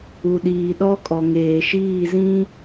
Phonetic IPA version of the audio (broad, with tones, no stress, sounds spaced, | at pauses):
u˨ ɗ iː˨ ɗ ɔ˦ kʼ ɔ˨ ŋ eː˨ ʃ iː˦˨ z ĩ˦